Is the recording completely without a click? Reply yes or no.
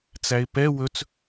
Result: yes